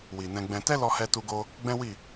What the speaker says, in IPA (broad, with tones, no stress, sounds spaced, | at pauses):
w i˨ n ɛ̃˧ ɡ͡b ɛ̃˧ t ɛ˦ l ɔ˧ h ɛ˧ t u˧ ɡ o˧ | ɡ͡b ɛ̃˦ w i˦˨